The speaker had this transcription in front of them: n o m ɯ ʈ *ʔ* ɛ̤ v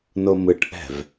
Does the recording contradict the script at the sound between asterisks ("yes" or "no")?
no